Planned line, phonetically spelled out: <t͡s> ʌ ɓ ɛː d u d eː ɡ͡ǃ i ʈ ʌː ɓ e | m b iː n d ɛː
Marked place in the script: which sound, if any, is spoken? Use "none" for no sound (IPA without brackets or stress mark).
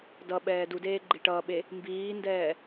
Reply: d